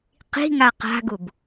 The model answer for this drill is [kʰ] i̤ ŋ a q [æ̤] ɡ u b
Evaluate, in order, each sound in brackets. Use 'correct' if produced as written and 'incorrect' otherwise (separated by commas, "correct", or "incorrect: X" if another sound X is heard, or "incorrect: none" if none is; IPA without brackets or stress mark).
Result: incorrect: q, incorrect: a̤